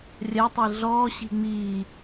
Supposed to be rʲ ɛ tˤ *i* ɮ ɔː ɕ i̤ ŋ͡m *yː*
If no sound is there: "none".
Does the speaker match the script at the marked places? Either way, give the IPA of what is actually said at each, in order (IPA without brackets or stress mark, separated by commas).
i, iː